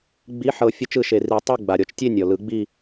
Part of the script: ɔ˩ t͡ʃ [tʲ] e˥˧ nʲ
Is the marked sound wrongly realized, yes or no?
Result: no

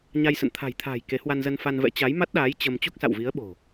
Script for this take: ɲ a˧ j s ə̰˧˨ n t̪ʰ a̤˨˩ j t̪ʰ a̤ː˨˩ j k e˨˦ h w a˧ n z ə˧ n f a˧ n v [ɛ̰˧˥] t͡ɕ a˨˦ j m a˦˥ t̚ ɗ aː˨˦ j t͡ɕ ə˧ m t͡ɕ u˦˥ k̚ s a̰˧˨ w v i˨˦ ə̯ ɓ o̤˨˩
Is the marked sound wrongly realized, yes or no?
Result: no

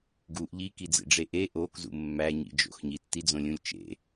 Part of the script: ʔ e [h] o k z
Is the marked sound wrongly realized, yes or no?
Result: yes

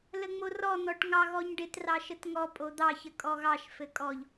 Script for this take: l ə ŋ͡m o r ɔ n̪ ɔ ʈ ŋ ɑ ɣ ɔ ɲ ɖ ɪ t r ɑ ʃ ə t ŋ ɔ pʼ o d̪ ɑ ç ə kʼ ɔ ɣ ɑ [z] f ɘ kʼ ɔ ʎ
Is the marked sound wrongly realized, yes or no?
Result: yes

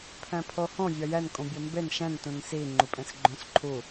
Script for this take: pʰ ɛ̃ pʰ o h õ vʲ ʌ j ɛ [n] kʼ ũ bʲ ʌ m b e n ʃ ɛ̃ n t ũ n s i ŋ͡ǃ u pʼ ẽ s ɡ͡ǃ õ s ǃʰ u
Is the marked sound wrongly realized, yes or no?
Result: no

